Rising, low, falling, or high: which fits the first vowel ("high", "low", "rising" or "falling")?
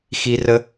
high